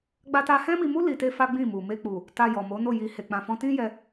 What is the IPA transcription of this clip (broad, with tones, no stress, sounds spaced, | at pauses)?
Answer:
ɡ͡b a˦ t a˦ h ɛ̃˦ m i˧ m u˦ l i˧ t e˦ f a˦ ɡ͡b ĩ˦˨ m u˨ m e˧ k͡p u˨ | t a˧ j ɔ˨ m o˨˦ n o˦˨ j i˧ h e˧ k͡p ã˧ f ɔ̃˦ t ĩ˦ j ɛ˧